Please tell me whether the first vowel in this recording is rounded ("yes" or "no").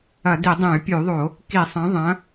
no